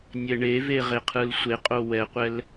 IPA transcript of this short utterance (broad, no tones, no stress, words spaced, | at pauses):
nʲɛɳeve ʁeqʰɯlsʷeqʼo wɛqʷɛl